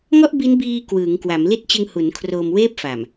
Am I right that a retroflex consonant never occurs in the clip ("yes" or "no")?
yes